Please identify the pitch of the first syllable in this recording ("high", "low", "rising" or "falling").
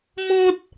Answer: high